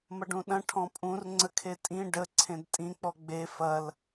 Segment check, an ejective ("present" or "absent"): present